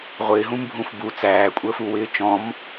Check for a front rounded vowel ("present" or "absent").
absent